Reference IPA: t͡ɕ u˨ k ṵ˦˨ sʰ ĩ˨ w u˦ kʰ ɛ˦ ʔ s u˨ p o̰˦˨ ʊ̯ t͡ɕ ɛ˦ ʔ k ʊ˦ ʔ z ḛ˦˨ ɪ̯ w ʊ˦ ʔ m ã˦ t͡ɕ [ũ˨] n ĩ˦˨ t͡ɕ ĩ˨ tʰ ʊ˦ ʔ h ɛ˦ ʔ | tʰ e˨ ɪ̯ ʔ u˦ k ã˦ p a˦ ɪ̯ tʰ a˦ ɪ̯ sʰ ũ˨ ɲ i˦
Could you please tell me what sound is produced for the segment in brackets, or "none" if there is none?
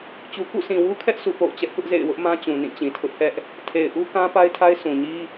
ũ˨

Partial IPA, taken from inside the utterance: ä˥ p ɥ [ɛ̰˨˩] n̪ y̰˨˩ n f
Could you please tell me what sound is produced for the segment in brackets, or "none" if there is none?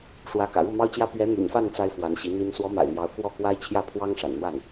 ɛ˧˥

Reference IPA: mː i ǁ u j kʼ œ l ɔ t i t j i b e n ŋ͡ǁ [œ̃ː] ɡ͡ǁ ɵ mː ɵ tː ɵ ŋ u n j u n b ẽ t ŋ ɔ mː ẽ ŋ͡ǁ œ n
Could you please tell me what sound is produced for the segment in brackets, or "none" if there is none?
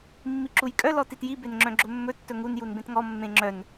œ̃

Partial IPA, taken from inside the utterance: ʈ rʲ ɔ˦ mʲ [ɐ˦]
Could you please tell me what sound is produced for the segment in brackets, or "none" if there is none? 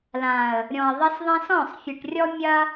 ɐ˦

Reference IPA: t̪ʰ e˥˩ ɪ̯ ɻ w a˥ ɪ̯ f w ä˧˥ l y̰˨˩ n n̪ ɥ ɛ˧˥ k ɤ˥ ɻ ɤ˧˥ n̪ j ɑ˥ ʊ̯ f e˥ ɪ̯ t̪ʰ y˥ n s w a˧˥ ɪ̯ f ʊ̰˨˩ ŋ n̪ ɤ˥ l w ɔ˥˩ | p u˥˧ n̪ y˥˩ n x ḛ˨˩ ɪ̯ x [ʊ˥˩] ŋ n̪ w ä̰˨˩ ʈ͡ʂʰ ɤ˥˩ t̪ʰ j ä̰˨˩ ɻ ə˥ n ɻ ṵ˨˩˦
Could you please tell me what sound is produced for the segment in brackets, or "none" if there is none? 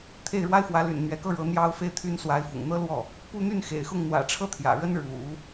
ʊ˥˩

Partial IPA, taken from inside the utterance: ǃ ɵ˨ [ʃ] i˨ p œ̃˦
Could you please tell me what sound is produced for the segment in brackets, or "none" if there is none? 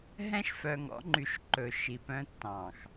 ʃ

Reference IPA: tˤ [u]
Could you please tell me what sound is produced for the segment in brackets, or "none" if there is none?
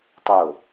o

